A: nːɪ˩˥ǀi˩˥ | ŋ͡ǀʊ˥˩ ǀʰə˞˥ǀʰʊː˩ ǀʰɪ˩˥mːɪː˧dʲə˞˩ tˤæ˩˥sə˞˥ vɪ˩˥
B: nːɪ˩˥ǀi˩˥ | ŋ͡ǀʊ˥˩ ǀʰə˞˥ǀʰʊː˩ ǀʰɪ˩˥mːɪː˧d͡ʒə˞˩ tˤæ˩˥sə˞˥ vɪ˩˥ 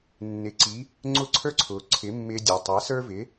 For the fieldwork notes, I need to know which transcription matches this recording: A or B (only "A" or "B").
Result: A